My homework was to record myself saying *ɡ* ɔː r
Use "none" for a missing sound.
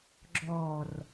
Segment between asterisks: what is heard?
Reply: ɡ͡ǁ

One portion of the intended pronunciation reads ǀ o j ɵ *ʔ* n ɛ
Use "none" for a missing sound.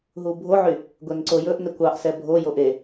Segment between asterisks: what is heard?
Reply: ʔ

